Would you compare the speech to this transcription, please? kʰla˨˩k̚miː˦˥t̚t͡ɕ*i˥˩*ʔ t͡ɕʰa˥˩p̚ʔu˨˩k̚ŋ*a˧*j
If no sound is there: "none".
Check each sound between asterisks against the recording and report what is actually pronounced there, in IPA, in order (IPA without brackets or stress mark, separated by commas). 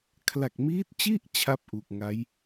i˥˩, a˦˥